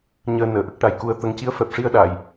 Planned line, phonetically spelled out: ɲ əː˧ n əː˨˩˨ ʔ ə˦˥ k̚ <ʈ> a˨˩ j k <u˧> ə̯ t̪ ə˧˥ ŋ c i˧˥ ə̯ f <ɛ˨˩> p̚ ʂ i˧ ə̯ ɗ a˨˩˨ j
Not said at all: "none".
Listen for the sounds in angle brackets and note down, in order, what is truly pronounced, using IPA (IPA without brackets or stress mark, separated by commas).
ʈ, u˧˥, ɛ˨˩